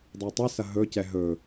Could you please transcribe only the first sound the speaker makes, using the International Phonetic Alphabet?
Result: dˤ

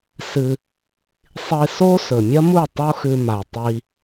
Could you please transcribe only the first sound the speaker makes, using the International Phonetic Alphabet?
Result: s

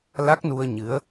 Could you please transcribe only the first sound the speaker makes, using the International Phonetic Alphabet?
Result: l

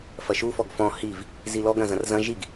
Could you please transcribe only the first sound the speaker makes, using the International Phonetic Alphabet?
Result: f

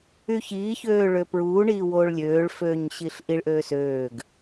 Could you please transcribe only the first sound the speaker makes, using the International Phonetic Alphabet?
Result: y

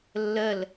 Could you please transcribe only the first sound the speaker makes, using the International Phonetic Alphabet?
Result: lː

